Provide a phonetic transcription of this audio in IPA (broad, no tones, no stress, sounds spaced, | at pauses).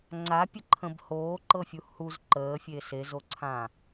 ŋ͡ǀ a pʲ ə ǃʰ ə̃ b h oː ǃ ɤ fʲ u h u z ǃ əː fʲ e s e z o ǀʰ ã